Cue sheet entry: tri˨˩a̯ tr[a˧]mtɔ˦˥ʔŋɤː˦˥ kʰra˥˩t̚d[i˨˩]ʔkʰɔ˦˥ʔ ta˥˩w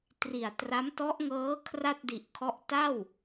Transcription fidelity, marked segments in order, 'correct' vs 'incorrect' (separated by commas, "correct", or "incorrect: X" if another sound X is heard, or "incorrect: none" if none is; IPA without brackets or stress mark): incorrect: a˦˥, correct